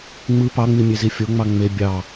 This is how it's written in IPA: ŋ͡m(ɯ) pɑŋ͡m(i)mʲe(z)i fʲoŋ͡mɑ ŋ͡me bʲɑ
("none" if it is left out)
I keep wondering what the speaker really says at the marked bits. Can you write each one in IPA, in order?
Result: ɯ, i, z

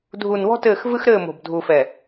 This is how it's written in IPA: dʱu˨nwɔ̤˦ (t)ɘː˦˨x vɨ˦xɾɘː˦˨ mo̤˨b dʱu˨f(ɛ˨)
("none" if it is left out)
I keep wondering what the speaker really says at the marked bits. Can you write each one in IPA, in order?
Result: t, ɛ˨

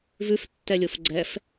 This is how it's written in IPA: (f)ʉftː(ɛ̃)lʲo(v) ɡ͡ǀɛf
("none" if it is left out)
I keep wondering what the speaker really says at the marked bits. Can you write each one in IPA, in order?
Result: v, ɛ, f

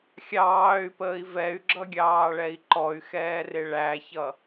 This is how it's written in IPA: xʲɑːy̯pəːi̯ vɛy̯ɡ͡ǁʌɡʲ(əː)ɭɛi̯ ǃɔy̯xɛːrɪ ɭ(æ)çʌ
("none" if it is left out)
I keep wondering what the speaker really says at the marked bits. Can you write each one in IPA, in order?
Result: ɑː, æ

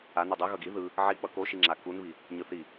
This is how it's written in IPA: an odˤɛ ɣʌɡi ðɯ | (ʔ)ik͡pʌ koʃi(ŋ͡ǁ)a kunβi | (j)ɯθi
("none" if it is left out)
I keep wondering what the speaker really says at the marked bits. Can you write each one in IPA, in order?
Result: ʕ, ŋ͡ǁ, ɲ

